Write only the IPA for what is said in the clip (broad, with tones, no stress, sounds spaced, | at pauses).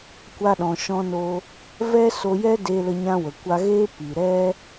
kʷ a˧ ɗ ɔ̃˨ ʃ ɔ̃˧ n o˧ | v ɛ˦ s o˧ j ɛ˦ d e˧ l ə˧ ɲ ã˧ w ə˨ kʷ a˧ ɣ eː˦ p i˨ ɾ ɛ˦